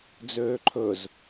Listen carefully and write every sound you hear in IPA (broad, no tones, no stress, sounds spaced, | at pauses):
d͡z øː ǃʰ ɵ z